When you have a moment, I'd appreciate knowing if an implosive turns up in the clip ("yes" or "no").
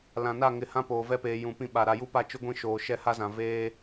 yes